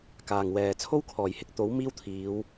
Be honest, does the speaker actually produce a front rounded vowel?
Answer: no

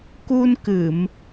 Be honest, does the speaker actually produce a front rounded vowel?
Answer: no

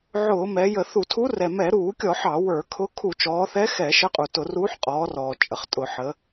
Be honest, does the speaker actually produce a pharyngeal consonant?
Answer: yes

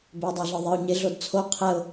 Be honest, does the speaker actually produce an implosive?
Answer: no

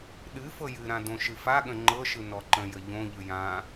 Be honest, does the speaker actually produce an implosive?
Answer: yes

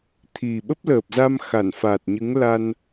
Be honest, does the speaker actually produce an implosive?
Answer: yes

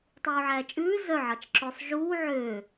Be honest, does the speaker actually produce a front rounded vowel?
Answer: yes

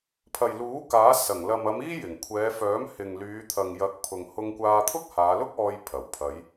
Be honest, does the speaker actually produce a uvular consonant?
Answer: no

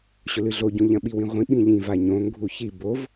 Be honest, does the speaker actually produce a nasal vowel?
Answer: yes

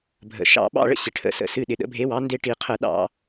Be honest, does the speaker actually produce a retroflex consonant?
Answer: yes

